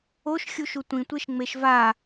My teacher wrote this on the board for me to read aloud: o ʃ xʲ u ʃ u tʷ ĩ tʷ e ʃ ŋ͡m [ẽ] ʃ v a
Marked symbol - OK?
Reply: no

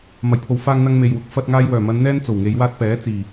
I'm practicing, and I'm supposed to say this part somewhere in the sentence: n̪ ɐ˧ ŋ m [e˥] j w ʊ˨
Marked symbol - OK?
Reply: no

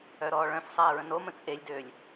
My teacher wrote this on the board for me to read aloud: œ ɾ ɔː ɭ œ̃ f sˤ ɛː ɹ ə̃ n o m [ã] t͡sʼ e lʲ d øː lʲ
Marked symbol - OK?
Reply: no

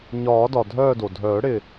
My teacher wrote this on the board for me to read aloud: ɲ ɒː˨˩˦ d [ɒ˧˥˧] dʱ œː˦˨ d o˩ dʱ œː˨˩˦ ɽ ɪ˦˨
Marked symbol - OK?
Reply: no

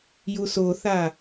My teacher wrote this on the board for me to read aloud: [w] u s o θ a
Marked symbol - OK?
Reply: no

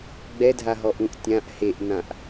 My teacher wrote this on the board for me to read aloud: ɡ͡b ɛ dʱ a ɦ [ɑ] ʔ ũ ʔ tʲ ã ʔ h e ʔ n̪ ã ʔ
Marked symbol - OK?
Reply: no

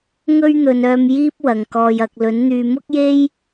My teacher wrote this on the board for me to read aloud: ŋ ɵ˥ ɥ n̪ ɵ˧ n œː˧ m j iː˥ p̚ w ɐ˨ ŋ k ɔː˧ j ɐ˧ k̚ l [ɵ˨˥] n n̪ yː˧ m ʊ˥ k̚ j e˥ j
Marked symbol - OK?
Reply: yes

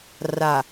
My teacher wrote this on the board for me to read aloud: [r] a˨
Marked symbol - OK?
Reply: yes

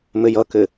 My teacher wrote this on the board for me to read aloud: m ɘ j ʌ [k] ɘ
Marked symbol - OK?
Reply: yes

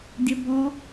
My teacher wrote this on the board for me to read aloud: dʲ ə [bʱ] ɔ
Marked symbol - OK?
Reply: no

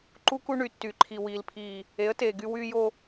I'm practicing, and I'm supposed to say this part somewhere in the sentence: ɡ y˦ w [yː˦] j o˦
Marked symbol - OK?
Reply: yes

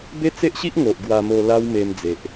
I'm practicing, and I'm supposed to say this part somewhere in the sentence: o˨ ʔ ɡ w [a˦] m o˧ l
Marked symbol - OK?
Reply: no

